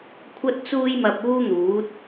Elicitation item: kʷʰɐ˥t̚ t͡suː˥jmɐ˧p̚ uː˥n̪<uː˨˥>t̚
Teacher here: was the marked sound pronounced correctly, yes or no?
yes